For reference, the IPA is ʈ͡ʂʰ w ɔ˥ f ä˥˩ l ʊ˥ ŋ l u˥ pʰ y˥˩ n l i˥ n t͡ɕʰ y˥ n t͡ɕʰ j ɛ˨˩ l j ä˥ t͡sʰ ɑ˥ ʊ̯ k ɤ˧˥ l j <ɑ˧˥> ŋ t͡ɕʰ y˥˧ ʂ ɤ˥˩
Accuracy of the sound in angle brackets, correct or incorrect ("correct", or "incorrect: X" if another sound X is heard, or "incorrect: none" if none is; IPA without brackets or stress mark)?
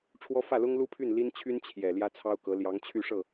correct